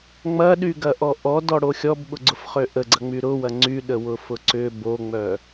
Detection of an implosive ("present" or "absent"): present